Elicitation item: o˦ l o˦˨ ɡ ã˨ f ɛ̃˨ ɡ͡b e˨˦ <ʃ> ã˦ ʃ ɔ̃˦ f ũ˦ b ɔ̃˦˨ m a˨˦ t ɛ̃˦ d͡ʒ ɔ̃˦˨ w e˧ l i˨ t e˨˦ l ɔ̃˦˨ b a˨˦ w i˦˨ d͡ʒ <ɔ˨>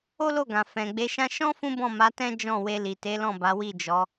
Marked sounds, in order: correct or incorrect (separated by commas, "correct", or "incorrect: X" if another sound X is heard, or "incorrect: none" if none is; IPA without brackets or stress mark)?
correct, incorrect: ɔ˨˦